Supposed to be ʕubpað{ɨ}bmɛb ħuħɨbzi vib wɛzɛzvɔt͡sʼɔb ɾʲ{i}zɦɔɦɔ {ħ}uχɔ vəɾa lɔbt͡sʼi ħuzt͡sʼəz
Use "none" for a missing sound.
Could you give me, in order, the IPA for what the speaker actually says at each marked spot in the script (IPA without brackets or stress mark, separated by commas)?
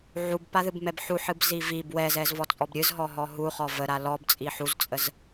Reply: ɨ, ɨ, ɦ